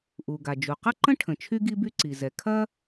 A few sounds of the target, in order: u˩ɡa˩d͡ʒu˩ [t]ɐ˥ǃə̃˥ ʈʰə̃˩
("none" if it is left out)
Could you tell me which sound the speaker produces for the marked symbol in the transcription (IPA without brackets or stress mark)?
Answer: q